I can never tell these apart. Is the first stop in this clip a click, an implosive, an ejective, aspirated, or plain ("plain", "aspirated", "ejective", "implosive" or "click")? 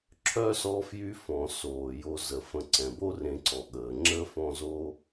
click